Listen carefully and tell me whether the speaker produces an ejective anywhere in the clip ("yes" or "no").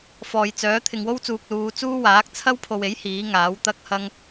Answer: no